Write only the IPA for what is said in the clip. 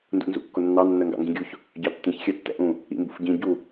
n d ṵ n z ṵ kː ʊ nː ɑ nː ɜ ŋ ɡ ɑ̰ ŋ ɡ ĩ ɡʲ u ç | ɟ ɑ tː ĩ ç xʲ ɜ tː ɛ̰ ʔ ũ | ḭ m b ṵ f ɟ ĩ ɟ u

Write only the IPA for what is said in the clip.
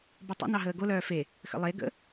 b œ tˤ ə̰ n ɑ ɦ əː ɡ o l œː f e | x ə̰ lˠ e ɡ ə̰

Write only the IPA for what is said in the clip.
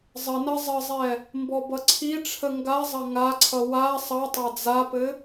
zˤ ə n ɐ zˤ ə zˤ ɛ | m b ɔ b ʌ ǀʰ i ʈ͡ʂʰ ə ŋ ɡ a zˤ ɐ ŋ a ǀʰ ʌ w a sˤ ʌ tˤ a d͡z a p ɘ

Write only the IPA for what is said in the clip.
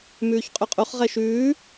m ʉː ç qʼ ʉ qʼ u χ ʁ ɛ ʃ ʉː

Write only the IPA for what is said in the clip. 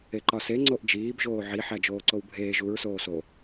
e ǃ ɒ s e ŋ͡ǀ o ʔ d͡ʒ iː b ʒ oː ʕ i ħ æ d͡ʒ oː ǀ o w bʱ eː ʒ u ɹ s oː s o

